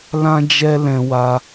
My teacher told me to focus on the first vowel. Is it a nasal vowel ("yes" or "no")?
yes